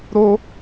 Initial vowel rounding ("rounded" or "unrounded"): rounded